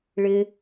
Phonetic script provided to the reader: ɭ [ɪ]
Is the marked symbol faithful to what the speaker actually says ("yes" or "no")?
yes